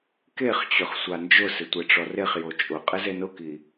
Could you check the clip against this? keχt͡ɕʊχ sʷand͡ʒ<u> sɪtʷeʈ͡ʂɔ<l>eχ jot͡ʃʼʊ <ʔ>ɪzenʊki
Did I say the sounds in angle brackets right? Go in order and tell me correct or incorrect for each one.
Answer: incorrect, incorrect, incorrect

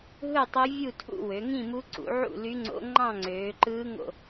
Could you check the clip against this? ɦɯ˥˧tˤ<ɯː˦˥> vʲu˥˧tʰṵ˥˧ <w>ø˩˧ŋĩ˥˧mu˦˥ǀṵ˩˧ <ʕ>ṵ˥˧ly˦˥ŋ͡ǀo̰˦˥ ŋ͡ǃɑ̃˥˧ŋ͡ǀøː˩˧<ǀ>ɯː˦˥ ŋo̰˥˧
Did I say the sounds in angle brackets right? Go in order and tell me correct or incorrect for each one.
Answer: incorrect, correct, correct, incorrect

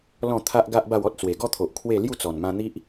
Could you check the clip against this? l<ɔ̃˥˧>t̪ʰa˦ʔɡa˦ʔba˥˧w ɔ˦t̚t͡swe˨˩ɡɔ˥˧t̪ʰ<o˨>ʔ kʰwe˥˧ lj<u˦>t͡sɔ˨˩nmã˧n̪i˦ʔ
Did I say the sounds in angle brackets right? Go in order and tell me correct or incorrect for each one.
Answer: correct, correct, incorrect

